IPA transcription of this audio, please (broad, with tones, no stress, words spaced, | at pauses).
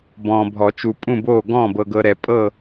bɔ̃ː˨bʱɔ˨˩˦t͡ʃu˨ pʼũ˥˨boː˥˨ ɡɔ̃ː˥˨bɤ˨ɡɤ˨ɾɛ˨˩˦ pʼɤ˥˨